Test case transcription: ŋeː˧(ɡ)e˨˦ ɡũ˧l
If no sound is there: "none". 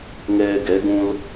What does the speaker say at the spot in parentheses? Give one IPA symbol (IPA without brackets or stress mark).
ɡ